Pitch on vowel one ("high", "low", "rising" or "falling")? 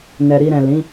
low